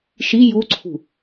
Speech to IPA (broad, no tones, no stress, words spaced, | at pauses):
ʃi juǀʰṳ